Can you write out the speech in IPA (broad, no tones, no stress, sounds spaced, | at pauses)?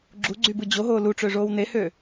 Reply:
ɡ͡ǁ u ɡ͡ǀ y b ɯ d͡ʑ o ɦ oː l u ʈ͡ʂ ø ʐ oː w n e h øː